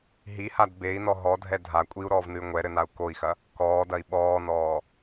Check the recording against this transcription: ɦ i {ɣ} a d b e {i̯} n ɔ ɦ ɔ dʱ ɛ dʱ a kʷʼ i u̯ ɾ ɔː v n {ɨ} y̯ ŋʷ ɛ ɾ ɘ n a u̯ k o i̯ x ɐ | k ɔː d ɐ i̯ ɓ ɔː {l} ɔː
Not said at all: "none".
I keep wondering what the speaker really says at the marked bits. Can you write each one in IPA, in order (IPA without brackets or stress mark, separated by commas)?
h, i̯, ɨ, n